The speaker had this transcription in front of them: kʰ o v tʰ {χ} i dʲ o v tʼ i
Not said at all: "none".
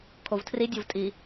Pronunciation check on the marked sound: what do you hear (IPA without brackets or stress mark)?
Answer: r